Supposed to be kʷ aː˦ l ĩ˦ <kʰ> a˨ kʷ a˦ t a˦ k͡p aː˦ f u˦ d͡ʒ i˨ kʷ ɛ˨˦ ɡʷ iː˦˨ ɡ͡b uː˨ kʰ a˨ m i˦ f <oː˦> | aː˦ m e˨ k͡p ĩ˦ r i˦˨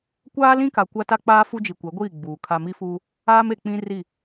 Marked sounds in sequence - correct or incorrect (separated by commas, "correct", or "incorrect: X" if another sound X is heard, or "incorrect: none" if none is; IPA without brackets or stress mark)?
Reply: incorrect: k, incorrect: uː˦